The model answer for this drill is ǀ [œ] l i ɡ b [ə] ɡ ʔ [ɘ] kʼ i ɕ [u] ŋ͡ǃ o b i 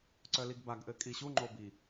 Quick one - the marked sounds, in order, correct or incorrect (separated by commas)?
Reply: correct, incorrect, correct, correct